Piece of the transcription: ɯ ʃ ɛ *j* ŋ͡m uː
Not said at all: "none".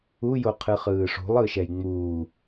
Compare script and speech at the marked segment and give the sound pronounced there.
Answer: j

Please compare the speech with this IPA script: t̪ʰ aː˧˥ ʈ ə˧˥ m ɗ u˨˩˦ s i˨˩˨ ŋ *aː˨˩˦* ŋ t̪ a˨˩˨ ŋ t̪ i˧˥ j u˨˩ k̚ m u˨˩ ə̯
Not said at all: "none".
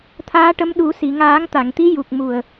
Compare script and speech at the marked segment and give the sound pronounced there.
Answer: aː˨˩˦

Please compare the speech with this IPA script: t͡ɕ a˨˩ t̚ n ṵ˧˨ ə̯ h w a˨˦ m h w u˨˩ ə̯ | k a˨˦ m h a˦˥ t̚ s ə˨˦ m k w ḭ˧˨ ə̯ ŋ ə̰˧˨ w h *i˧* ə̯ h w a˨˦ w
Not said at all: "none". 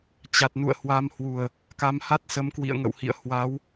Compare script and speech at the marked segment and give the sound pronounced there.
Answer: ḭ˧˨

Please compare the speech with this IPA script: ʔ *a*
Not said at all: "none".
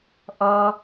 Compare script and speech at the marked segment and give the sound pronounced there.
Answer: ʌ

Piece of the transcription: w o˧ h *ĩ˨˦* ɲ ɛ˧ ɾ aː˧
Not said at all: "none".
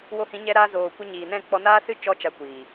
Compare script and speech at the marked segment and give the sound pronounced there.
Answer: ĩ˨˦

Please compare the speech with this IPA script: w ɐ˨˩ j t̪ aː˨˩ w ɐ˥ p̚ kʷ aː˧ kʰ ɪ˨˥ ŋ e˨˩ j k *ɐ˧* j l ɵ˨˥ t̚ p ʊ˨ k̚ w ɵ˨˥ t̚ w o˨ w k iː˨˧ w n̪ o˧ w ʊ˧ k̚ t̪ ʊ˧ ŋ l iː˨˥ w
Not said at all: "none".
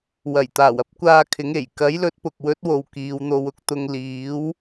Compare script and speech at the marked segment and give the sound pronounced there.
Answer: ɐ˨˥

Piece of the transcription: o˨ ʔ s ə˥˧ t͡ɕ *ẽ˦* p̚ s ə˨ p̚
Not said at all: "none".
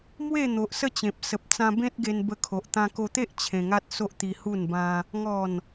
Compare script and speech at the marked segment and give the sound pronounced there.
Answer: ẽ˨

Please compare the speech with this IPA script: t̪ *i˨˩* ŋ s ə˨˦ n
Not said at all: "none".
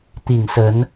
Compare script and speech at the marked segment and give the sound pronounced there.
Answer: i˨˩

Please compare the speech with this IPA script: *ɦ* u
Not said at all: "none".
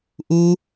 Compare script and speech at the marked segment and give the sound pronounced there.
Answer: ʔ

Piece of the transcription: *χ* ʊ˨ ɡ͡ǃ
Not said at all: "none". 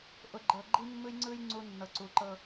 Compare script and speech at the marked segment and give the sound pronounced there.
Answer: ʔ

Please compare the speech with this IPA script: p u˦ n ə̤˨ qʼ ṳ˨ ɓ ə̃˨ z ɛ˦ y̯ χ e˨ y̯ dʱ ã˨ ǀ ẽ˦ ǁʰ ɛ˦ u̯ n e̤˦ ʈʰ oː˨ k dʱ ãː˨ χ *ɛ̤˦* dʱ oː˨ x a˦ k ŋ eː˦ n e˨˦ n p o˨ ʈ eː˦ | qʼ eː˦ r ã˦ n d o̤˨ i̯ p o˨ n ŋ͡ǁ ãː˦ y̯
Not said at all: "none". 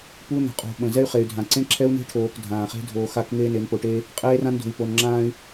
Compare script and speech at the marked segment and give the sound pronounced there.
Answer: e̤˦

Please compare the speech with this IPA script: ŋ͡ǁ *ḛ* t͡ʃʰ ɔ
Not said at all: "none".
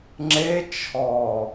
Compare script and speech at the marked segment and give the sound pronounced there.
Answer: e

